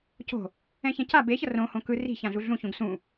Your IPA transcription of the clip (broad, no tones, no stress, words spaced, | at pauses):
co̤ | ɛ̃çɛ̃ca be çʌrõhõ kɯ ri̤çãɮu ɮũçũɡ sũ